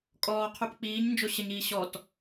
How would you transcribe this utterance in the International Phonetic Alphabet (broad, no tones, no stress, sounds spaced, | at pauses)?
kʼ ɔː qʰ ʉ p k͡p iː ɲ n d͡ʒ o ɕ ə ɲ iː ɕ ɔ t